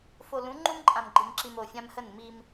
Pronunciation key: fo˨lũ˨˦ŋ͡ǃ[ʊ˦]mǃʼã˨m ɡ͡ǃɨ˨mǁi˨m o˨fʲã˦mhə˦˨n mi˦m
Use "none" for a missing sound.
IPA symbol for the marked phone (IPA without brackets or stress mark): u˦